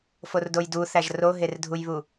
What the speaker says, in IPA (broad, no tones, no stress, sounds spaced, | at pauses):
f o r d o j d u θ æ ʒ r o ɦ e r dʱ u j β u